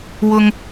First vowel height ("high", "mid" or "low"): high